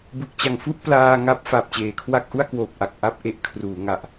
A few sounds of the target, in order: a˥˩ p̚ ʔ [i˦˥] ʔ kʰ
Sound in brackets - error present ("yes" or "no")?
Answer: yes